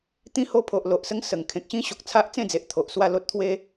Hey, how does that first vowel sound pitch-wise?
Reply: high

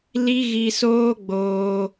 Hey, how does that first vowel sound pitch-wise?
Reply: high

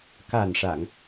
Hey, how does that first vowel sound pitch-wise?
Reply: low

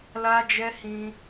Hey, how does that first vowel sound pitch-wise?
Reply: high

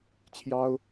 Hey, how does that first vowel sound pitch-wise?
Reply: high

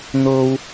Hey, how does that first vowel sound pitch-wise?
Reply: high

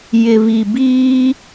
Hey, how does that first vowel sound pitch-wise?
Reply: low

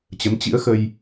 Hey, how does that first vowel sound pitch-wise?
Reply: rising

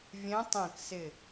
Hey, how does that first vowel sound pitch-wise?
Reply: rising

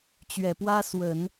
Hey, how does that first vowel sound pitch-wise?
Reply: low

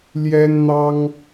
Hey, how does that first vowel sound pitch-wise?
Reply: high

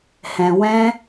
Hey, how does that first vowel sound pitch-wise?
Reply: low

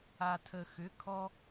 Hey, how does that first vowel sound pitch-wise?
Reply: low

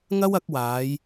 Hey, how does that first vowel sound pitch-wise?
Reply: high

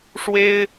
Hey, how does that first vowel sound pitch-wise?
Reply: high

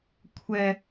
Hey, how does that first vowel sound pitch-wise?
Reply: low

